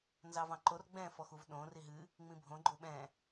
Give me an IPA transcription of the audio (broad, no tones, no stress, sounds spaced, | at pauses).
n z ɑ v ɑ̃ ǃ o r ɡ͡b ɛ̃ f ɔ x u v ɗ õ r i ɦ ɨ | ŋ͡m ĩ bʱ õ ɡ͡ǃ o ɓ ɛ̃